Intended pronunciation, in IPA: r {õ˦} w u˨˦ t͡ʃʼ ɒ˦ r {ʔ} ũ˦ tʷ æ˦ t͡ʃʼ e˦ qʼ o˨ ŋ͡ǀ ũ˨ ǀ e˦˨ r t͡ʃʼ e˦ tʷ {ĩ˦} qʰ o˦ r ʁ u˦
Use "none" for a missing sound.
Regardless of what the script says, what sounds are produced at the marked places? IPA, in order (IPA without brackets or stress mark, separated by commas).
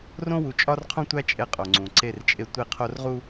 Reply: õ˦, qʰ, i˦